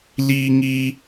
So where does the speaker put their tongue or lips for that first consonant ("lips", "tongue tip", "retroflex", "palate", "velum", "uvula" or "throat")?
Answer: tongue tip